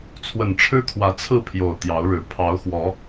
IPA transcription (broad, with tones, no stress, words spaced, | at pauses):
t͡sʰwə˨˩nʈ͡ʂʰɻ̩˦kʰwä˨˦ t͡sʰɹ̩˥˨pʰjo˨˩ʊ̯ t̪jɑ˨˦ʊ̯ɻɻ̩˨˩ pʰɑ˨˦ʊ̯xwɔ˨˦